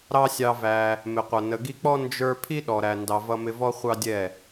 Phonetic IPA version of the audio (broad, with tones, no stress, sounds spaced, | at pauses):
ɾ ɑ˦ sʲ ɑ˧ v æ˧ | m ɪ˨ qʷ ʌ˨ n ə˨ ɡ i˧ k͡p ɔ˦ n d͡ʒ ə˞˦ pʰ i˦ ɗ ɔ˨ ɾ æ˨ n d ɑ˧ v ʌ˦ m ɪ˦ v ɔ˦ χʷ ɑ˦ dʲ ɛ˦˨